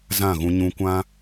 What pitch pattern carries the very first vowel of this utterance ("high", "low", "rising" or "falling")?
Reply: falling